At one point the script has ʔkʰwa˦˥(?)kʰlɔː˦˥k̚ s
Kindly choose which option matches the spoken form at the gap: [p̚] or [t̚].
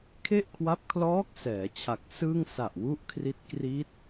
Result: p̚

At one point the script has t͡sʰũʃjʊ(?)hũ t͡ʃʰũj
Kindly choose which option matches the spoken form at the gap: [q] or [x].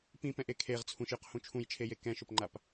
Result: q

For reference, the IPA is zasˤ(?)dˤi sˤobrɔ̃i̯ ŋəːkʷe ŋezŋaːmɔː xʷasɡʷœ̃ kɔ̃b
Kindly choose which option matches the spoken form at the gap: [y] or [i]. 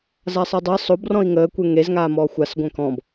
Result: i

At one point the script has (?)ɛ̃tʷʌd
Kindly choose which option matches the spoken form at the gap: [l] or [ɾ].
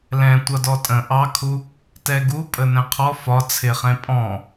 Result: l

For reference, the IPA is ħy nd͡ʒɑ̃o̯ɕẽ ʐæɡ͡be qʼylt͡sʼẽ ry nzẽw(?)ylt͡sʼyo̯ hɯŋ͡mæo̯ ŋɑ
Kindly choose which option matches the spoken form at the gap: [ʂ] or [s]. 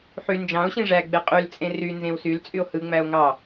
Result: s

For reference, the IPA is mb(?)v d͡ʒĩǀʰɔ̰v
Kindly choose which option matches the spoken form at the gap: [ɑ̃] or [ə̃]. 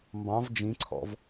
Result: ɑ̃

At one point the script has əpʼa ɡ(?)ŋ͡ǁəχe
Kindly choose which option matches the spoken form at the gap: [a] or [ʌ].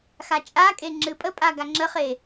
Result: a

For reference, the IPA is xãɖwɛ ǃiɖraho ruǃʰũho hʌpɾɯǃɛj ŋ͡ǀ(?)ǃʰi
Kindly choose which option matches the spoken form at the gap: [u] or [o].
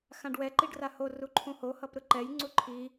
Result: u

